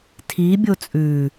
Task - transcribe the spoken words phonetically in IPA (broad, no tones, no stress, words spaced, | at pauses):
tʰi bʲot͡sʼʉ